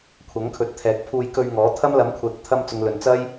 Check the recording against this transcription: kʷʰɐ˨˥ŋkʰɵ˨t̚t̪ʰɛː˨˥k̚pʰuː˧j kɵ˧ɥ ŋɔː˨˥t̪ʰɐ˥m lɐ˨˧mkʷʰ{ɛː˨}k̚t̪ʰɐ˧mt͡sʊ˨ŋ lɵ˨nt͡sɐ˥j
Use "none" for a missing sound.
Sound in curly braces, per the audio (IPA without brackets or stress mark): ɛː˨